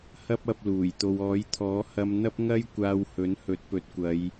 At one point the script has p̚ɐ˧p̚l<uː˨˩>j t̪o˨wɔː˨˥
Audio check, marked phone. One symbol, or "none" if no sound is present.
uː˨˩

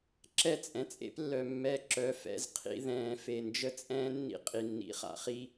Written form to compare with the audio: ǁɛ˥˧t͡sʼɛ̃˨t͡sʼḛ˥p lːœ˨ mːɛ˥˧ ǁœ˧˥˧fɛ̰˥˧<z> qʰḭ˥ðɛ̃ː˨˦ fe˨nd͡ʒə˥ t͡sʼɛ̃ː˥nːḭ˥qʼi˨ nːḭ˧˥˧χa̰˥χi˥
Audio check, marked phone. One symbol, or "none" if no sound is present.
z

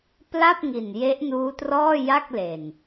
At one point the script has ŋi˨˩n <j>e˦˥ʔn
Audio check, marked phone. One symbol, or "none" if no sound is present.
j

